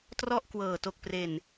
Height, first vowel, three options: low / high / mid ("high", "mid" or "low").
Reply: mid